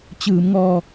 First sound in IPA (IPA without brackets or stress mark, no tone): t͡ɕ